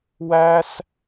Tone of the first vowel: high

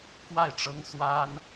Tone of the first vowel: falling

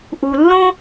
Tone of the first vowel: low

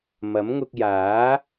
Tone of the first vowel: rising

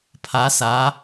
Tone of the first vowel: rising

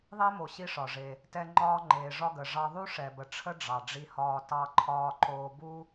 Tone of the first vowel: high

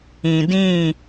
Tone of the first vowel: low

